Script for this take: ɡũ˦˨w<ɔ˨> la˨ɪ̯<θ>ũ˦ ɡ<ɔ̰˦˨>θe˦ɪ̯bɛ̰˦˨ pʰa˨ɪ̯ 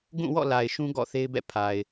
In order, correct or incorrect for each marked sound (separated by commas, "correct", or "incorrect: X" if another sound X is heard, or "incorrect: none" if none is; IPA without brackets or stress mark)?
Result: incorrect: ɔ̰˦˨, incorrect: ʃ, correct